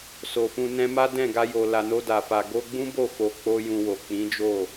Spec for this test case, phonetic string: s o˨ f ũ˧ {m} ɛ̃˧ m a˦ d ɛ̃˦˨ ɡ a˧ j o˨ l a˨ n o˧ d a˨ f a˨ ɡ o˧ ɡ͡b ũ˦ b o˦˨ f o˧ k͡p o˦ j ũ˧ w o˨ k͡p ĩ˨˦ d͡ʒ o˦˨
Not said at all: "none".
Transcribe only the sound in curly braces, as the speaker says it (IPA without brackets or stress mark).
n